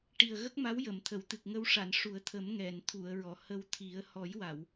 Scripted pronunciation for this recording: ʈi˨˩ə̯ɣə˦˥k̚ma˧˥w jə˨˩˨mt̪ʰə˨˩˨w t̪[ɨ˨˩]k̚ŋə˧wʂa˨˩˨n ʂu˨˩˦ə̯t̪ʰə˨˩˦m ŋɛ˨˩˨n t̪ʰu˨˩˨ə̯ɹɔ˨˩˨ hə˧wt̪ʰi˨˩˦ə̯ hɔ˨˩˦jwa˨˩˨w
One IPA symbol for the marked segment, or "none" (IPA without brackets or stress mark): ɨ˨˩